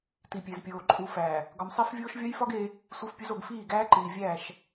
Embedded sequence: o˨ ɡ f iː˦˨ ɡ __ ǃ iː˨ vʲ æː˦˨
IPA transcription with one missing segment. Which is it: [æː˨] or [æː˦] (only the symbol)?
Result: æː˦